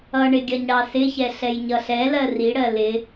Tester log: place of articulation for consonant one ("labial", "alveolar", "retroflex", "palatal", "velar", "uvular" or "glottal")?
retroflex